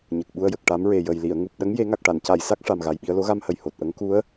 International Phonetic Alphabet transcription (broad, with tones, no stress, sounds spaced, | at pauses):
ɲ ə˨˩ k̚ ɓ u˧ ə̯ j ə˨˩ k̚ ʈ a˧˥ m ɹ e˨˩ j ə˨˩ j l i˨˩˨ ə̯ ŋ u˨˩ p̚ ɗ ə˧˥ ŋ j e˨˩˦ ŋ a˨˩ k̚ ʈ a˨˩˨ n c a˨˩˨ j s a˦˥ k̚ ʂ a˨˩ m ɣ a˨˩ j ɓ i˧ ə̯ l o˧˥ ɣ a˧ m h ə˨˩ j h o˨˩ t̚ ʔ ə˧˥ ŋ k u˧˥ ə̯